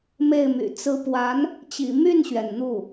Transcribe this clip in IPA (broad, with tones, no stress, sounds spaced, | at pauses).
m e˥˩ ɪ̯ m y̰˨˩ t͡s ɹ̩˧˥ p w a˧˥ n | t͡ɕ ḭ˨˩ m y˥˩ n ɕ ɥ ɛ˩ n n̪ u˥˩